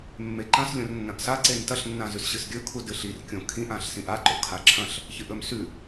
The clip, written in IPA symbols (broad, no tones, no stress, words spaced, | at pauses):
mːeǃɐ̃s lʲõrnːɐ̃ʔsa ǀentɐɬ nːãzʉsɕɨsɡʲɵ kʰudɨɬir kʲõkʰĩʔ ãɬsĩʔa ǃo̰kʰaǁʰɐ̃ɬ | çɨʔɵmsʉ